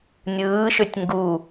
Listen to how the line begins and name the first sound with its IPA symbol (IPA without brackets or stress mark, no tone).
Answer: nʲ